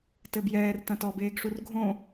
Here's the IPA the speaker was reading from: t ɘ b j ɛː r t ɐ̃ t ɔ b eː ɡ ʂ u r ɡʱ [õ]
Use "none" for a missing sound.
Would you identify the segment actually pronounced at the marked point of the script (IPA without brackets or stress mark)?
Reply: õ